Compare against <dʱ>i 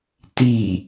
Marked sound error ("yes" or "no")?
yes